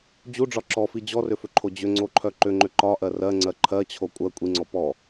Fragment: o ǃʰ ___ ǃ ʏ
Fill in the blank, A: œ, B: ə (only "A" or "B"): A